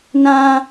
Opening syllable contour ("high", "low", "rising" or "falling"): high